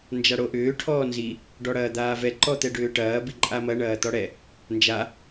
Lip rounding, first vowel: unrounded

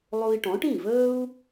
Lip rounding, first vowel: rounded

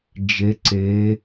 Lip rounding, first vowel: unrounded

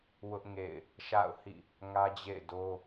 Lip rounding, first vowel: rounded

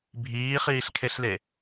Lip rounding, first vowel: unrounded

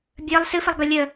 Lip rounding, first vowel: unrounded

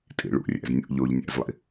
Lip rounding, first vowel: unrounded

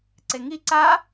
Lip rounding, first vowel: unrounded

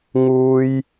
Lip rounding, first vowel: rounded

